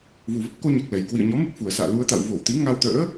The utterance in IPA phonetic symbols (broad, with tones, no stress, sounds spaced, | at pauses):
v u˨˩ v ə˦˥ p̚ k o˧ ɲ a˨˩ k̚ l ɛ˨˩ j k w ḭ˧˨ ə̯ ɲ ɔ˨˦ m ɨ˦˥ k̚ f u˨˩ ə̯ s a̰ː˧˨ l u˧ ə̯ t̪ a̰˧˨ w v o˧˩ w t̪ i˨˦ ŋ a˧ w t̪ ə̰ː˧˥